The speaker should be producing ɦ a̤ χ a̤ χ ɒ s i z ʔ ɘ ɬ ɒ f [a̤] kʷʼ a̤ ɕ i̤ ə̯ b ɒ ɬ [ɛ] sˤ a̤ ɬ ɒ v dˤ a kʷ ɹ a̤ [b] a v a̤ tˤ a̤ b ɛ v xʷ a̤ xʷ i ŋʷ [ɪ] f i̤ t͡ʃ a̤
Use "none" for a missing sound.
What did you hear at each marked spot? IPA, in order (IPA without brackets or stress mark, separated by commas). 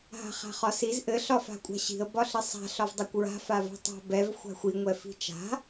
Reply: a̤, ɘ, f, ɛ